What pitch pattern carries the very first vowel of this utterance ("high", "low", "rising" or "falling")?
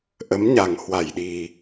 rising